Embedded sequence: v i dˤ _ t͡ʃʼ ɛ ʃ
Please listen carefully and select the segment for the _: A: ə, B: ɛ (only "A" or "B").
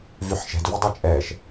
A